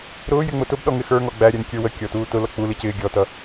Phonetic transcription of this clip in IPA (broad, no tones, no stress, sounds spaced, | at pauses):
ɾ ʊː j ɪ ŋ͡m ʊ t ʊ b ɗ ɔ ŋ ɪ x ə˞ ŋ ɔ ɡ͡b æ ɾʲ æ n kʲ ə˞ w ə kʲ ɔ t uː t ʊ l ʌ k͡p u l i c ɪː ɡʲ ɔ t ʌ